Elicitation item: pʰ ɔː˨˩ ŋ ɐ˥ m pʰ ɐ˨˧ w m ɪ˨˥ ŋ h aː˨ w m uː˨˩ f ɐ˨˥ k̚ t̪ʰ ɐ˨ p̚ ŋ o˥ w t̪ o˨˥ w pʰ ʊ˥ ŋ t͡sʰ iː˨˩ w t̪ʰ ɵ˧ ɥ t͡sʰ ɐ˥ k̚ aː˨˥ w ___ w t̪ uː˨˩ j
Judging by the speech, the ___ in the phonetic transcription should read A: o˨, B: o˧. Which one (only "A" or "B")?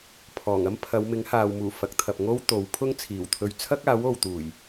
A